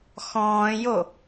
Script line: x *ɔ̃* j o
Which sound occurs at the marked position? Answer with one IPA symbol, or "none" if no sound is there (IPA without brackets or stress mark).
ɔ̃ː